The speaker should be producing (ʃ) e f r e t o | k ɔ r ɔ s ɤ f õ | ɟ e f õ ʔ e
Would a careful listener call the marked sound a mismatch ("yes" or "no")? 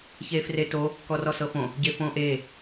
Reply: yes